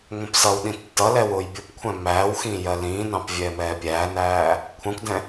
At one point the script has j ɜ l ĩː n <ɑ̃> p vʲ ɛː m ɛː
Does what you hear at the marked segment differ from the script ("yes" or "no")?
no